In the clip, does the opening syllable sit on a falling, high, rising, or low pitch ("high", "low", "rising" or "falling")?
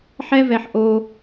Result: high